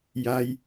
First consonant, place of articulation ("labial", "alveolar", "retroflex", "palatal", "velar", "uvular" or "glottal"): palatal